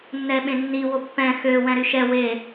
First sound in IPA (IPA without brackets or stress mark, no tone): nː